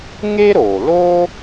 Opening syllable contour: high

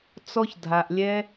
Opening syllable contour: high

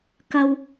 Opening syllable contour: high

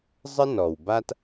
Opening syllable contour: high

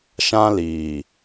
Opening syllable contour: high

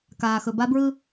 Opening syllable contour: low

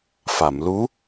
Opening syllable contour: low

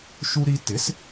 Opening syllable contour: high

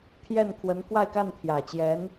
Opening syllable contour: falling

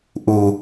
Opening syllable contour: low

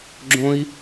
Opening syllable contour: high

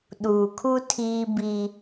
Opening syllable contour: low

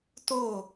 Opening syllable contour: falling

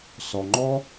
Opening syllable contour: low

